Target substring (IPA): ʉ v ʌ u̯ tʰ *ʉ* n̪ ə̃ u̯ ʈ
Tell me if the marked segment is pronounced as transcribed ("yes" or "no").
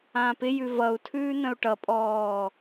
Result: no